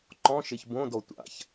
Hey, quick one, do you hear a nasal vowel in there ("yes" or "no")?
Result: yes